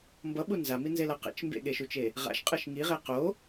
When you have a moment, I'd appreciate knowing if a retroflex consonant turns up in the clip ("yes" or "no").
no